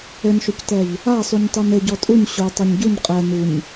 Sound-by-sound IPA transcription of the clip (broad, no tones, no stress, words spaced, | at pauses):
ɘnʃoctɛʎ | asˤuɲtˤun ɘ ɟɔtʼuɲ ɕo tˤoɲɟuɲ qʼɛ nuɲ